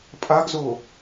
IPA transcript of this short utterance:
pʼaɡzo

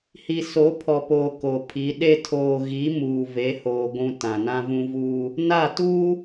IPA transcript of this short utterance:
hi˨so˨˦pʰɔ˨poː˨ ko˨pʰi˨˦ ɗe˦ tʰoː˨ɣi˨˦ muː˨ve˨˦hoː˨ ɡʷũ˨ tã˨nã˦vũ˦ vuː˦ | na˦˨tuː˦

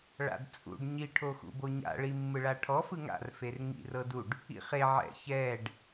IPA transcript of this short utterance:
ɭa̰dt͡sʼṵɖ ɲi ʈʰoxṵboɲa̰ ɭimːɯɭaʈʰɔ fɯŋa̰r ferŋḭr ɤduɖ | ḭχe ʕɛ̰çɛɖ

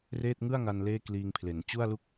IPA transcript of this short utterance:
reː˥˩t̚ŋɯ˥˩a̯ŋa˧n leː˥˩kliː˧ŋpʰle˩˦n t͡ɕu˥˩a̯lu˥˩k̚

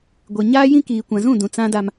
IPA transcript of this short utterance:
ɡʷe˨ ɲaː˦jĩ˦kiː˨ kʷã˨zũ˦˨dũ˨ t͡sã˦da˦m

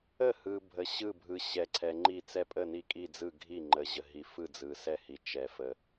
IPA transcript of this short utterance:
ə˥˩hɯ˨bʱə˨ ɕɯ˥˩bʱɯ˨ɕɛ˨ ǀʰɛ˨ŋ͡ǃi˥˩t͡sɛ˥˩ pʼə˥˩ni˥˩kʼi˥˩d͡zɯ˥˩ ɡʱi˥˩ŋ͡ǃə˨ ʑə˨ɦi˨fɯ˥˩ d͡zɯ˨sɛ˥˩hi˨ t͡ʃɛ˨ fə˨

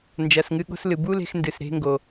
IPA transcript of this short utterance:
nd͡ʒɐː˩sŋɨ˧ ɠo̤˧slɨ˩ bu˥le̤˧x ndɨ˩sɾe̤˧ŋɡo˩

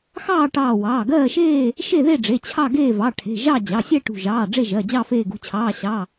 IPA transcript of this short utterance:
xɑː˥˨ʈɑː˧˩ wɑː˩˧˩ɡɜː˥˨ʃeː˥˨ | ʃe˥˨ðe˥˨ɖ͡ʐe˩˧˩ t͡ɕʰɑ˥˨ ɡeː˥˨vɑ˩˧˩ʈʰe̤˩˧˩ʒɑ˥˨ d͡ʑɑ˩˧˩sʲɛ˥˨ʈṳ˧˩ʒɑː˩˧˩ ɖ͡ʐe˥˨ʒɜ˩˧˩d͡ʑɑ˥˨ feː˧˩ɡṳ˩˧˩t͡ɕʰɑː˩˧˩ ɕɑ˩˧˩

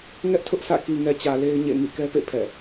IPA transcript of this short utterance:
ŋɛ˦ʔtʰʊ˦ʔsʰä̰˦˨ ki˨ŋɛ˨t͡ɕä˨ le˦ɪ̯ɲḛ˦˨ ŋḭ˦˨kɛ˦pḛ˦˨ pʰɛ̰˦˨

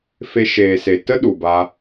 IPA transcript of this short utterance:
fe˧ ʃeː˨se˨ tə˦ ɗu˨ba˧

